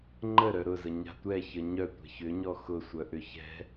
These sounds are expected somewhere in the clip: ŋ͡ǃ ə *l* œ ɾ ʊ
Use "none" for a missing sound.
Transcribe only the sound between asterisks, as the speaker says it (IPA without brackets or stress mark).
ɾ